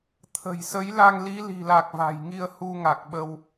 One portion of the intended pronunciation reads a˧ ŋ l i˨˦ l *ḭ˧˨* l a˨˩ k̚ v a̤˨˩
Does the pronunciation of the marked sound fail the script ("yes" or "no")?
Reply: yes